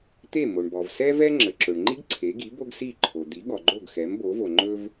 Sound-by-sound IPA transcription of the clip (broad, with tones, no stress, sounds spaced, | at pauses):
t̪ e˥˩ m o˩ ɳ b ɔ˩ v s ɛ˥ v ɛ˥ ŋ͡ǁ ə˩ ǁ ɵ˩ ɳ ŋ͡ǃ i˥ ɡ ǀʰ e˩˥ ɡ i˩˥ b o˥ ɡ s i˥˩ ǃʰ o˩ d̪ i˩˥ ɠ ɔ˩ ɡ͡ǃ o˥˩ ɡ x ɛ˩˥ m b o˩˥ v o˩ ŋ͡ǃ ɵ˥ v